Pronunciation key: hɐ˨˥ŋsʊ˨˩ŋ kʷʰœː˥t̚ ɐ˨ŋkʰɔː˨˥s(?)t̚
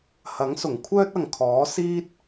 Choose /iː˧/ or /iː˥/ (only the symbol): iː˥